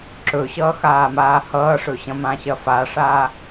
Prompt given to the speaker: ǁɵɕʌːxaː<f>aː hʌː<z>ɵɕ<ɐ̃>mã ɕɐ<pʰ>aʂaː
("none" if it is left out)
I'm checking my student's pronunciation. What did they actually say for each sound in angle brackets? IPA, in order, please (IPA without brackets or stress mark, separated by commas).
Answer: m, ʂ, ɐ̃, f